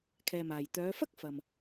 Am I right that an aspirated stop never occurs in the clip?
no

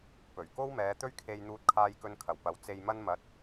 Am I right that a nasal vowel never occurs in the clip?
yes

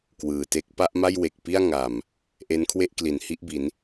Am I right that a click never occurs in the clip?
yes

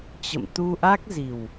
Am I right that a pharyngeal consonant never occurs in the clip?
yes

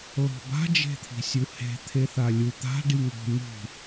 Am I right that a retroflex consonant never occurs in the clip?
no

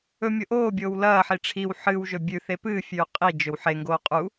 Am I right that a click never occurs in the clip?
yes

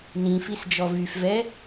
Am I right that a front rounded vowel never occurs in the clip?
no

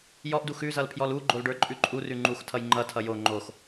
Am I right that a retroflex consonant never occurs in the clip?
no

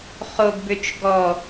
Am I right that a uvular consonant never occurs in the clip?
no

